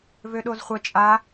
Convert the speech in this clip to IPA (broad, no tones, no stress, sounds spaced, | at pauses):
v ø ɗ o z χʷ ə t͡ʃʼ a